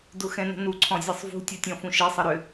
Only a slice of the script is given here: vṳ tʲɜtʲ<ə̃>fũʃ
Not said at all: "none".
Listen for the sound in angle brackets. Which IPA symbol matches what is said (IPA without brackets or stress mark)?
ɔ̃